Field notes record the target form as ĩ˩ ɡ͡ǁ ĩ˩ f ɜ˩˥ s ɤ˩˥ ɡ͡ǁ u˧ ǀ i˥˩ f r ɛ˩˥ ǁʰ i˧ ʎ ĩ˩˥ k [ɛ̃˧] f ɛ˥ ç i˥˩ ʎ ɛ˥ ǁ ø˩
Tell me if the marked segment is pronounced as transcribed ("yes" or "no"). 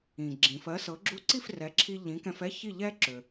yes